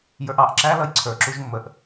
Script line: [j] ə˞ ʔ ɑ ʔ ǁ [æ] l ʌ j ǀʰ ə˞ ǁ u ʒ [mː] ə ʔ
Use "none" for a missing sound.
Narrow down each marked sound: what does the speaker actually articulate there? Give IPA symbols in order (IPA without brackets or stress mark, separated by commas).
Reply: j, æ, mː